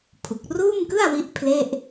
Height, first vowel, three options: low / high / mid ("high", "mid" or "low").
high